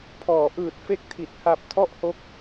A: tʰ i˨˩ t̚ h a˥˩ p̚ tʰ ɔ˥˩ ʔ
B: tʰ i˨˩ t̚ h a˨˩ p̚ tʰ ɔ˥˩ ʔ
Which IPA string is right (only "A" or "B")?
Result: B